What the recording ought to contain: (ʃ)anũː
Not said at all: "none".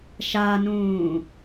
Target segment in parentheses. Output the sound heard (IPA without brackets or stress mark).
ʃ